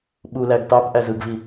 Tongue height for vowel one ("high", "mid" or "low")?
high